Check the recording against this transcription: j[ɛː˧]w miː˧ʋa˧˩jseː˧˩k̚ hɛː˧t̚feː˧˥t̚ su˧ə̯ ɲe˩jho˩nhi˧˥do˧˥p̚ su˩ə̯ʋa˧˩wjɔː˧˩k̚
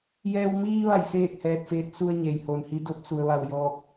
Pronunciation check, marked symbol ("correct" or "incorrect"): correct